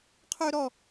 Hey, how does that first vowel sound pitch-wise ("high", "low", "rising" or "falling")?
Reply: high